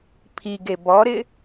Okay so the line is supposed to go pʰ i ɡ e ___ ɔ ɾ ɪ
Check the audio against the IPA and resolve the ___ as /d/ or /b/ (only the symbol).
b